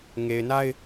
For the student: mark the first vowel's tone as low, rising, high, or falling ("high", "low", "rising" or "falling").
low